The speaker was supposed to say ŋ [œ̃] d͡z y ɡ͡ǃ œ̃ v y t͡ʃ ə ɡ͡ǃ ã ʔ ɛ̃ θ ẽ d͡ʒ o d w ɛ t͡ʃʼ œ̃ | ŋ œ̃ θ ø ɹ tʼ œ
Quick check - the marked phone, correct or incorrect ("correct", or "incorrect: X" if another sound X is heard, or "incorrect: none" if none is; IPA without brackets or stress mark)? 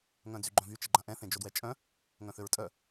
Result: correct